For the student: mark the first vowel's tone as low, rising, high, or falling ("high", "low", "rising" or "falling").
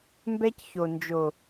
high